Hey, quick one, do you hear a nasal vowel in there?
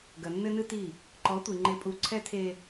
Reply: no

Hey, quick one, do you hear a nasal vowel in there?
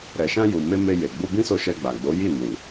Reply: yes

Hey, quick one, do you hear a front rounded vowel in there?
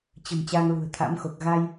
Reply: no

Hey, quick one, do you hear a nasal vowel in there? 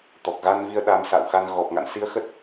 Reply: no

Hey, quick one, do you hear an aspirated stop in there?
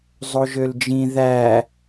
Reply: no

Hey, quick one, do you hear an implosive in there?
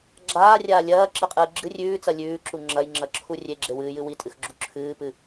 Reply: no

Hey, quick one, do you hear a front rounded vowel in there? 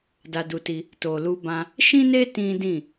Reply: no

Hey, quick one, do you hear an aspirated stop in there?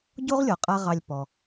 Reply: no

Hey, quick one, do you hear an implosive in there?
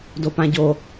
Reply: no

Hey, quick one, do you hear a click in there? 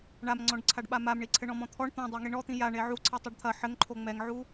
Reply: yes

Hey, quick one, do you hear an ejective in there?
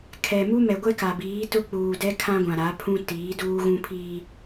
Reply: no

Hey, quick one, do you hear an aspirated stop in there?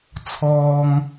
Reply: yes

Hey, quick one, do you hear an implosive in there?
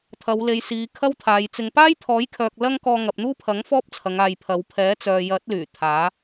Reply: no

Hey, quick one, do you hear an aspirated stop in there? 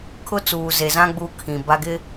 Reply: yes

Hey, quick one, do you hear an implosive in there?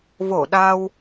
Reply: yes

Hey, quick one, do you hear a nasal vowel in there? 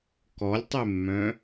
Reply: yes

